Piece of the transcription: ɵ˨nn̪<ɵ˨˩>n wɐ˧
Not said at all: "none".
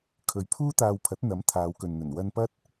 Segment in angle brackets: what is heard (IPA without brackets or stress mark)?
ɵ˨˩